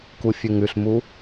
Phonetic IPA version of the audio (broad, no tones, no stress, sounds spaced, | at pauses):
k u fʲ ʉ ŋ ʉ ɬ m u